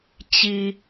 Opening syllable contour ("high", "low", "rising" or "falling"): low